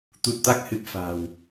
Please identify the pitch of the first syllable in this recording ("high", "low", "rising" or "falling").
low